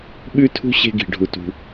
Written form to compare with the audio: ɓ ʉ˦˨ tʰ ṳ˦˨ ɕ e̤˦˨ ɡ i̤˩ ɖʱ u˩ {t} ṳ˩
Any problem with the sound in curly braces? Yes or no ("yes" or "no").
no